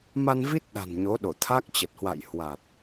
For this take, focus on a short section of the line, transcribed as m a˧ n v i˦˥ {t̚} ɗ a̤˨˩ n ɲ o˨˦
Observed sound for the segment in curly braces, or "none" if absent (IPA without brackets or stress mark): t̚